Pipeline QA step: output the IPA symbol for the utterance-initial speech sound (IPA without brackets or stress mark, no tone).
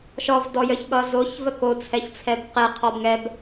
ʃ